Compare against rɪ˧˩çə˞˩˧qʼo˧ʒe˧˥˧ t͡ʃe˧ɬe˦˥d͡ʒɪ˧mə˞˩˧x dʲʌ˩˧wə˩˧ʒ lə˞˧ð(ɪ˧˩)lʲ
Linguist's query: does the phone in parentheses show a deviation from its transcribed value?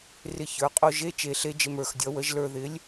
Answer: yes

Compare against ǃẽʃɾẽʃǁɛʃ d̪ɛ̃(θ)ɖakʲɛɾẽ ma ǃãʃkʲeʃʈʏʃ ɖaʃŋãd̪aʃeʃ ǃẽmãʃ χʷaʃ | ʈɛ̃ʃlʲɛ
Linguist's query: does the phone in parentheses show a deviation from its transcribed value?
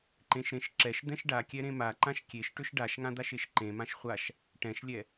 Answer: yes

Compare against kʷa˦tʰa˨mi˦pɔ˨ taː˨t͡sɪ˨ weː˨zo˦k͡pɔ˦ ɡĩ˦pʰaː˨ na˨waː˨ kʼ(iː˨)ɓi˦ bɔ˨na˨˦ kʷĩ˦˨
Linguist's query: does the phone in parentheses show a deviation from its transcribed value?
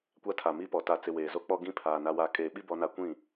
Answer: yes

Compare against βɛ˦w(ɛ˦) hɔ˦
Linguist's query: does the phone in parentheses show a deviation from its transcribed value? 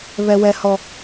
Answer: no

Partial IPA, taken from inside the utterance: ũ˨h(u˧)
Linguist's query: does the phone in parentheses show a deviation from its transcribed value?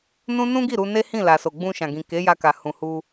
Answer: no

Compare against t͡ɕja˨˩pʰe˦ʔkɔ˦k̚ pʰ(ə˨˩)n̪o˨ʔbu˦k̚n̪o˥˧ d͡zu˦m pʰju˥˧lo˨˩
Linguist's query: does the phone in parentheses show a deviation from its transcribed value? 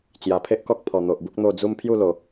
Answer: yes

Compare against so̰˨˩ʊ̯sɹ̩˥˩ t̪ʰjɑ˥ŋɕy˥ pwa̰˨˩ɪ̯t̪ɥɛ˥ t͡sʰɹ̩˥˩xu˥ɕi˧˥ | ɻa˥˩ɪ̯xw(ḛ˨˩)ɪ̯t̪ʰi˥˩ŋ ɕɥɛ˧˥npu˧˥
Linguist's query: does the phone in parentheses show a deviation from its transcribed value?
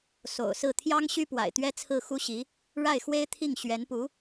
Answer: yes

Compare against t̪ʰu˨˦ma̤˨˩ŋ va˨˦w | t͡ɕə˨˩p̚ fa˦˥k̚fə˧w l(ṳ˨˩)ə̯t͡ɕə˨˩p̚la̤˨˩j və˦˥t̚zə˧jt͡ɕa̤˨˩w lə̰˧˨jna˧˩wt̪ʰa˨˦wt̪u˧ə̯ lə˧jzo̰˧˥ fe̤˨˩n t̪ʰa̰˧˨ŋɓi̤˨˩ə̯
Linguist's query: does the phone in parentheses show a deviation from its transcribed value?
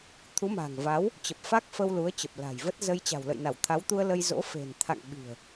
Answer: yes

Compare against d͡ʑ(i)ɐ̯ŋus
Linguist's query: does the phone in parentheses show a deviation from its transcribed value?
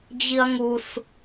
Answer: no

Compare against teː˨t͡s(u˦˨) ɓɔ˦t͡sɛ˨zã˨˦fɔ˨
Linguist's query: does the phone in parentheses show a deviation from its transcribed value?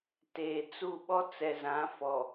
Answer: no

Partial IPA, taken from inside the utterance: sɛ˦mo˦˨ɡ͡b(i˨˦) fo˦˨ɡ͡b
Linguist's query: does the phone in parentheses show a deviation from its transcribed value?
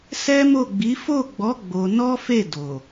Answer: no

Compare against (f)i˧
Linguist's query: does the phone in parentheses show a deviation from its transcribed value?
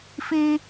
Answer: no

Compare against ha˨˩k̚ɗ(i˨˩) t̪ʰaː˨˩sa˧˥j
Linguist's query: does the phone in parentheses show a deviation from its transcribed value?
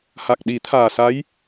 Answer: yes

